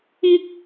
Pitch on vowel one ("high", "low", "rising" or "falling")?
high